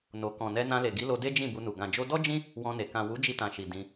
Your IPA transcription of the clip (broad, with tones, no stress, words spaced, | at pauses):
no˨ kɔ̃˨nɛ˧ nã˧le˨ɡi˨˦lo˧ de˦d͡ʒĩ˦˨bu˧nu˨ ɡã˨ d͡ʒo˧dɔ˦ d͡ʒĩ˦ | wɔ̃˧ne˨ kã˨ wu˨˦d͡ʒi˧tã˨ʃi˨ dĩ˧